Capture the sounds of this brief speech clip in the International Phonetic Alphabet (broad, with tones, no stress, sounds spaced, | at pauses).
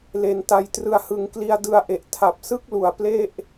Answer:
l e˧ n t a˧ j t r ɯ˧ a̯ h ɯ˧ ŋ k l i˧ a̯ d ɯ˧ a̯ ʔ e˨˩ ʔ tʰ a˨˩ p̚ s ɯ˥˩ k̚ l u˨˩ a̯ p l e˥˩ ʔ